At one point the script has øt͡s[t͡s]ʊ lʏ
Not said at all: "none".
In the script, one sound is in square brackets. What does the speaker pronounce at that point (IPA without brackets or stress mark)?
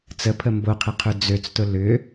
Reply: t